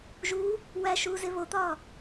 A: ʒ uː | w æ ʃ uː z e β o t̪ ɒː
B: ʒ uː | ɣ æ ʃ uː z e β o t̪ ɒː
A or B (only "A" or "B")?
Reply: A